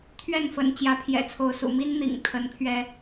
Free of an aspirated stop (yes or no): no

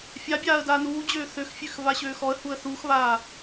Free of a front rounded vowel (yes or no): no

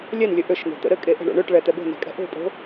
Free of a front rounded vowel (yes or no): no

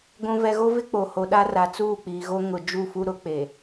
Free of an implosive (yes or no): no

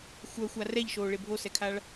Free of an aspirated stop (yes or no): no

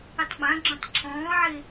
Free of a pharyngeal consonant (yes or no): no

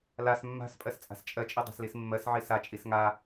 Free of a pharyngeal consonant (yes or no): no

